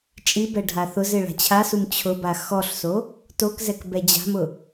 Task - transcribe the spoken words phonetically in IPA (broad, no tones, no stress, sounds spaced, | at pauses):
t͡ʃʼ i b ɛ ɖʱ a θ ʊ z ɪ ɭ a̤ t͡ɕʰ a s u m t͡ɕʰ ʊ b a x ɔ ɬ s o | t o k z ɛ k b ɛ d͡ʑ a̤ m ʊ